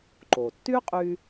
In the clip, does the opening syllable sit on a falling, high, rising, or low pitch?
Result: low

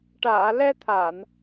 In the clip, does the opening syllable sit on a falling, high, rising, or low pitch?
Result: low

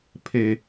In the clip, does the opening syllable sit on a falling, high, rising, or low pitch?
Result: low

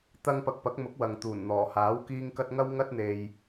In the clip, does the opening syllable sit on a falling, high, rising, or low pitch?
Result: high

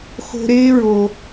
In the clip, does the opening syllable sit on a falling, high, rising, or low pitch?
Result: high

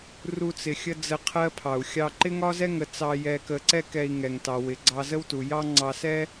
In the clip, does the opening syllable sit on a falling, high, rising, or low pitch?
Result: high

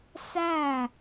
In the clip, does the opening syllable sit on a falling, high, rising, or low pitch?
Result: falling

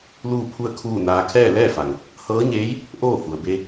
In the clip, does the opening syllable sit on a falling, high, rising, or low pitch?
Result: falling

